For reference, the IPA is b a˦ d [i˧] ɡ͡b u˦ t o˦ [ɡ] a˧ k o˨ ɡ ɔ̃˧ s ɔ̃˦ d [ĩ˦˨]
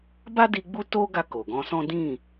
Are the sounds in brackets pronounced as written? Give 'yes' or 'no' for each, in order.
yes, yes, yes

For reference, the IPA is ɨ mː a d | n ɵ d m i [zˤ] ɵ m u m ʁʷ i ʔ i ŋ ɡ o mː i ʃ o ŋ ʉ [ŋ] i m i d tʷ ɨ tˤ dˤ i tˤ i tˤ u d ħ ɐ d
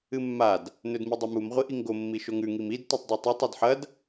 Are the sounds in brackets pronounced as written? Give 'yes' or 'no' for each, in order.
no, yes

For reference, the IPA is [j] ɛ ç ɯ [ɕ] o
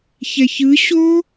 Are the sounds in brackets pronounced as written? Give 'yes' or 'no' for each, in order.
no, yes

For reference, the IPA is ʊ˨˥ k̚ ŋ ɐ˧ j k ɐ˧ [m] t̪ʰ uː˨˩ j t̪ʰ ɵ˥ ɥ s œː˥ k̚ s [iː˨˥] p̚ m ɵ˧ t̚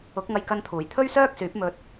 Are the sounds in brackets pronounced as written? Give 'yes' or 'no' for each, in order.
no, no

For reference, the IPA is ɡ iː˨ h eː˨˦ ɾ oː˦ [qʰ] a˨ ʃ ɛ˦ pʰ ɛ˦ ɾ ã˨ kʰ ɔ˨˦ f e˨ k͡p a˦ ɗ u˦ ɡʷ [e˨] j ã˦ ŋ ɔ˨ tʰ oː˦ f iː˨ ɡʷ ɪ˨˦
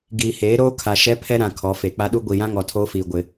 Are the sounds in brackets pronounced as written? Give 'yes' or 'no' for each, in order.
no, no

